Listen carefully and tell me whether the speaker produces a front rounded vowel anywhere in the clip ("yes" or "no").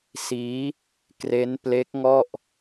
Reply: no